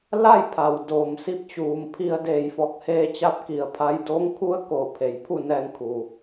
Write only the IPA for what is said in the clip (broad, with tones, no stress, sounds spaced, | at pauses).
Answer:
l a˥˨ j pʰ a˩ w d oː˩ m s i˧ p̚ t͡ɕ uː˩ m pʰ i˧ ə̯ d eː˧˩ j f ɔː˧˩ k̚ h eː˧ t͡ɕ a˧ p̚ k i˩ ə̯ pʰ a˧ j d oː˧˥ ŋ kʰ u˧˥ ə̯ k oː˧˩ pʰ e˩ j pʰ u˥˨ n ɛː˧ ŋ kʰ u˩